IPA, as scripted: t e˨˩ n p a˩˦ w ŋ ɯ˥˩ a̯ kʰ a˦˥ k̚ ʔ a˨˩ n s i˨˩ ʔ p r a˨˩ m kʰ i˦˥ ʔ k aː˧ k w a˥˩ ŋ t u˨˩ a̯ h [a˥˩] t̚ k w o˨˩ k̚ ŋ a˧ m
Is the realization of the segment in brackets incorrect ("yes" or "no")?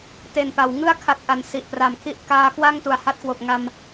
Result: no